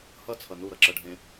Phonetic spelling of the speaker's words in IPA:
hʌt͡sʰʌ nuɾʌǁʌɖʱẽ

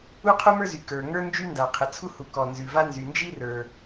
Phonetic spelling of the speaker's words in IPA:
u˥qʰu˥mə˞˥zy˩ kə˞˩ŋə˞˥ nd͡ʒy˥nda˩qʰɘ˩ t͡sʰu˥hu˩kɔ˩ nzʉ˩va˥ nzy˩nd͡ʒi˥rə˞˩

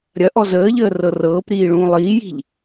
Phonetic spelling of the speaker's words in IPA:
ɾʲɐʔɔ zəːʎəː rɤrɤːpɾiː ɭũːlˠiːji̤ʎ

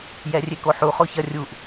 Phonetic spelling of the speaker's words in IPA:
jɛrʲekoħu χoçɐ rʲuʔ

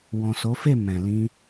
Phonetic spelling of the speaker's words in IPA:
wɔ̃˨so˨˦fe˦˨ mɛ̃˨lĩ˧

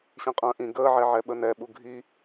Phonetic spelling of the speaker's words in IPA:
ɕĩqʼə̃ːʔĩ ɡəːʕɛʕɛ ɓənɛɓu ɡʱi

